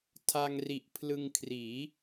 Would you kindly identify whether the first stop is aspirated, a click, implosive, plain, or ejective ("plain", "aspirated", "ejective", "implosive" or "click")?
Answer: aspirated